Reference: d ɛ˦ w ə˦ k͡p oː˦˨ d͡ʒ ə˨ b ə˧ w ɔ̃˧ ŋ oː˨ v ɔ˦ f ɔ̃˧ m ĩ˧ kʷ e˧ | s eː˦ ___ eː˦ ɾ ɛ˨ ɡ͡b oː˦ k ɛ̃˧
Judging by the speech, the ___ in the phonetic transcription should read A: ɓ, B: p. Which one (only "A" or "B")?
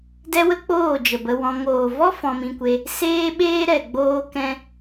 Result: A